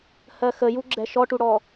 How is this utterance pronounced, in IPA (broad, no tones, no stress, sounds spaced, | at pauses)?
h ɜ x ə j u ɡ͡ǁ ɛ ʃ ɔ ʈ u ɽ ɔ